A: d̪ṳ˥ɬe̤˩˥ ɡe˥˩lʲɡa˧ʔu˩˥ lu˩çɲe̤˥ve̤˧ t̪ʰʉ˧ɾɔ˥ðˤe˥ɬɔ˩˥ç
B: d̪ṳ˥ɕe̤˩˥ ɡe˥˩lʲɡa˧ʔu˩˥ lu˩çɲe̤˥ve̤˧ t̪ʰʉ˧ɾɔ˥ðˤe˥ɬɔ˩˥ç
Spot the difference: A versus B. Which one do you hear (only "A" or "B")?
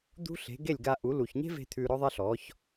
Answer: A